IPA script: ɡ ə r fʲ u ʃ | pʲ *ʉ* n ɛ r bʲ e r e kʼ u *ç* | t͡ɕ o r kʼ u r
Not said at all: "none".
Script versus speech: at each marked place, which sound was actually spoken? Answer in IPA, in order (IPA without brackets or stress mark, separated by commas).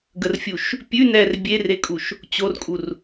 ʉ, ʃ